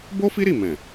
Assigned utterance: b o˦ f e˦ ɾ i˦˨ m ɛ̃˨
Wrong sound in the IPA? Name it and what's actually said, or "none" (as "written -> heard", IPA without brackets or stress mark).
e˦ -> i˦